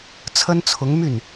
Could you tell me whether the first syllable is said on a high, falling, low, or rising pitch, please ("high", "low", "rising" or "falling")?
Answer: high